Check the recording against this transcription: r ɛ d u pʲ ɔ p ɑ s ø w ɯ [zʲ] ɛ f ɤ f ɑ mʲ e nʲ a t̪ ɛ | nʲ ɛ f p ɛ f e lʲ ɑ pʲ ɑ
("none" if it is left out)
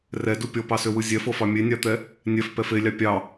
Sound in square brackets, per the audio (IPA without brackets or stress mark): zʲ